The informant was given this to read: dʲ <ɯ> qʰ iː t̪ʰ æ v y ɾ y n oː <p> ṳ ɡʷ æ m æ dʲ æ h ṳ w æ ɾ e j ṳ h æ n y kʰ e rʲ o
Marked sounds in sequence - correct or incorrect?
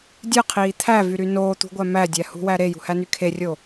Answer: correct, incorrect: t̪

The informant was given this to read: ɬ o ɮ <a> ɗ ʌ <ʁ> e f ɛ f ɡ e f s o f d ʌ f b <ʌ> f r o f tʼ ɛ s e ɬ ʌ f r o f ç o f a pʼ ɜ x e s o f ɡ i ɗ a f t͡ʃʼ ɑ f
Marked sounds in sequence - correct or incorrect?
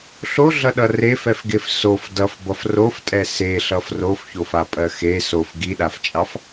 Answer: incorrect: ʌ, incorrect: r, correct

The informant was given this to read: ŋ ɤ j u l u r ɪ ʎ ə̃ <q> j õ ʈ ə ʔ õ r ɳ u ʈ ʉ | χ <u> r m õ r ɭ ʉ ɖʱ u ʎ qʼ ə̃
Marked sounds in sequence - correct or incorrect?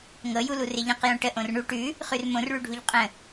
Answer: correct, incorrect: ʉ

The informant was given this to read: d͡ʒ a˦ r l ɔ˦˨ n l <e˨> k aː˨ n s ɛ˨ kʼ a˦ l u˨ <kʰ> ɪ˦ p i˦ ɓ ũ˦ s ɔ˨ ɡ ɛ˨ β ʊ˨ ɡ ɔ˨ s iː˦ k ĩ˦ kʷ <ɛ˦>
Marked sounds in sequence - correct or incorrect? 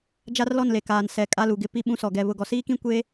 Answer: correct, incorrect: ɡ, incorrect: e˦

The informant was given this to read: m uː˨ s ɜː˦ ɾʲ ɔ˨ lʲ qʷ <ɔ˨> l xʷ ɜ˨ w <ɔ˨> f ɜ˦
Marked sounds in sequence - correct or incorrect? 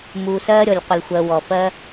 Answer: incorrect: ə˨, correct

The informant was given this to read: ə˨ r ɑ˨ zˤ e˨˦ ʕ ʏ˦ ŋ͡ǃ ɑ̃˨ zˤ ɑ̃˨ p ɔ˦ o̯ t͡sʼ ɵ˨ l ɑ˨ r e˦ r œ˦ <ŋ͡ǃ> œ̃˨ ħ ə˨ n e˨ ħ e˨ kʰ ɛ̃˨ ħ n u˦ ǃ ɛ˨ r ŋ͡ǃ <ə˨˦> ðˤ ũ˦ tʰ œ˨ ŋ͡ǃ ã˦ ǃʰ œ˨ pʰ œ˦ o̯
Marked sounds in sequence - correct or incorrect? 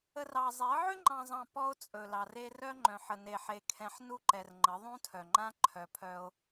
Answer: correct, correct

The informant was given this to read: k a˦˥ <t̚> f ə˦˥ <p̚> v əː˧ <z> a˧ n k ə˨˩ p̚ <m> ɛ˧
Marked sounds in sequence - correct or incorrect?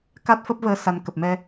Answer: correct, correct, incorrect: s, correct

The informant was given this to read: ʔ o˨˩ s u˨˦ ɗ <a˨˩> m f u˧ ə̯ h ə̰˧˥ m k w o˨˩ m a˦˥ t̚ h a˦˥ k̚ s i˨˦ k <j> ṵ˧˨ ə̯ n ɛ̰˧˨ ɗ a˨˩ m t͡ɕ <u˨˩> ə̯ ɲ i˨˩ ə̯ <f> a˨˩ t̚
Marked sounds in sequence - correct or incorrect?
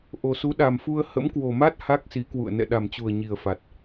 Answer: correct, incorrect: w, correct, correct

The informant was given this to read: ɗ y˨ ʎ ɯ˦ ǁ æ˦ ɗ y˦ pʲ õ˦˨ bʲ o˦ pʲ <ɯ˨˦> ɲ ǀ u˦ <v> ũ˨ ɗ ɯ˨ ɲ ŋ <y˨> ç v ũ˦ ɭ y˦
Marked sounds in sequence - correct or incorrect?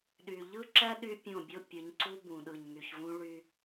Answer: correct, incorrect: b, correct

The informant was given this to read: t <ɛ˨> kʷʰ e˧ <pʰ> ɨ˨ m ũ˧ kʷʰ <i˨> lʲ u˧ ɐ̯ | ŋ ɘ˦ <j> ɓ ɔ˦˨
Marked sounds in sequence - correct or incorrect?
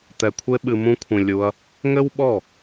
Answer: correct, incorrect: ɓ, incorrect: ĩ˨, incorrect: w

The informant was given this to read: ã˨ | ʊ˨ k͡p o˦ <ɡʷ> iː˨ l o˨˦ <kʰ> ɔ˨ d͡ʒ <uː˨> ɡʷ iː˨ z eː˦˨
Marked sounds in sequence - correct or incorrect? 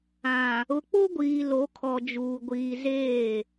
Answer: correct, correct, correct

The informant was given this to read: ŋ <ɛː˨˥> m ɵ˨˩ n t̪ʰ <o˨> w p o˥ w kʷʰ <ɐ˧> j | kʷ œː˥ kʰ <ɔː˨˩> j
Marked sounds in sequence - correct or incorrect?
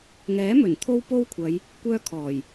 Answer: correct, incorrect: o˥, incorrect: ɐ˨˧, correct

